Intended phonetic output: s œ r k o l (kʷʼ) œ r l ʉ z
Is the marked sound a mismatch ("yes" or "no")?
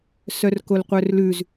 yes